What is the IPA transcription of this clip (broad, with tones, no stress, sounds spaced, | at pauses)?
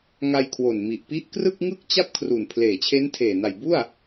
ŋ a˧ j kʰ w o˨˩ n m i˨˩ ʔ p i˦˥ ʔ k r ɯ˥˩ k̚ ŋ ɯ˥˩ k̚ t͡ɕ a˥˩ p̚ kʰ r u˨˩ n pʰ l eː˨˩ t͡ɕʰ e˦˥ n tʰ eː˨˩ n a˨˩ j b u˥˩ a̯